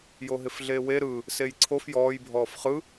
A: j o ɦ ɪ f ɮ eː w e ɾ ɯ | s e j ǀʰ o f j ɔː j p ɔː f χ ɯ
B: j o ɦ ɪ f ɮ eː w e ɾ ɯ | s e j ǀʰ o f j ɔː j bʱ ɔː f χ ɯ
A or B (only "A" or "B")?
B